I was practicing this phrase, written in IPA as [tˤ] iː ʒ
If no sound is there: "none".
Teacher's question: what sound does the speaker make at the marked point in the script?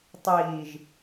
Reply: tˤ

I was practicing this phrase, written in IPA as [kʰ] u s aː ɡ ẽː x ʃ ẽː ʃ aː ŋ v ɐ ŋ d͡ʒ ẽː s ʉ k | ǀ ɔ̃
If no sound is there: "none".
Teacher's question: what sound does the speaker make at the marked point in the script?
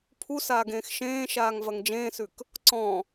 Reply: pʰ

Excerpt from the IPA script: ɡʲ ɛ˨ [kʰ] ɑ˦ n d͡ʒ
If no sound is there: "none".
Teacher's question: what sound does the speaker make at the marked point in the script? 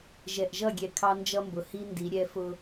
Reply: kʰ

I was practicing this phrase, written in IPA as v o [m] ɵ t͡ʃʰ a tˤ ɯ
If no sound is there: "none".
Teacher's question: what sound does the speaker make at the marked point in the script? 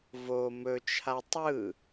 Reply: m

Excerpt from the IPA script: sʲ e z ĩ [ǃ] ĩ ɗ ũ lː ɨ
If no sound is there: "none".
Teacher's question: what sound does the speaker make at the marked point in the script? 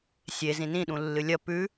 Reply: n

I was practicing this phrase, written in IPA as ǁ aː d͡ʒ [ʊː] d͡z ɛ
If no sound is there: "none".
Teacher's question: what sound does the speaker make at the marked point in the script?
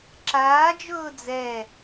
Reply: ʊː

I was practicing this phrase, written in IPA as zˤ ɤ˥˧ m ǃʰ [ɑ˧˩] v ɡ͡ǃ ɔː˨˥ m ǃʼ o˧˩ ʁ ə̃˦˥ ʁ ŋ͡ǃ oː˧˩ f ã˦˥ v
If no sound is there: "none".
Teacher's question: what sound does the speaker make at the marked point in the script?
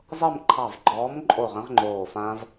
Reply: ɑ˧˩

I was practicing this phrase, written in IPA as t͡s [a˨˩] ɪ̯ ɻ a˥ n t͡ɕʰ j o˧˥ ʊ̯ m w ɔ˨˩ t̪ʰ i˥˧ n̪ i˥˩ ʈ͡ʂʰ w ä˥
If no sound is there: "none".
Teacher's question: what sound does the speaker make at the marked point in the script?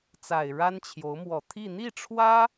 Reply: a˨˩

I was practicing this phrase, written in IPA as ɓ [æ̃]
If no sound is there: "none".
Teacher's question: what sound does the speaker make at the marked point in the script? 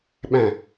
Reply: æ̃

